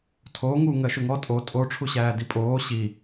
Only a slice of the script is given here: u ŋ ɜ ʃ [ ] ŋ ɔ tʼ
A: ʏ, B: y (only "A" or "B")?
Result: A